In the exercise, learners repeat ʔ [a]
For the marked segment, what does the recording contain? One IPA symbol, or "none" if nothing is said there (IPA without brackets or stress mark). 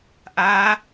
a